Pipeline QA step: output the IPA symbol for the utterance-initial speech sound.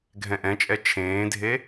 ɡʱ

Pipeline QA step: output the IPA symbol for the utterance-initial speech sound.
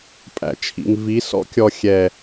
pʼ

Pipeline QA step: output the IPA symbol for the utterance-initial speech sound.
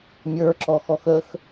mʲ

